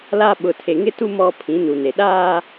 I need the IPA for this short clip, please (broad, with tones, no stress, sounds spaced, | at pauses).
l a˦ ɓ ʊ˨ tʰ e˨ ŋ ɪ˦ t u˦ m ɔ˦ pʰ ĩ˨˦ n u˨ n e˨ ɗ aː˦